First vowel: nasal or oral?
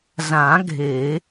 nasal